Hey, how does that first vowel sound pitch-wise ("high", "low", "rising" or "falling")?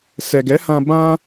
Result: low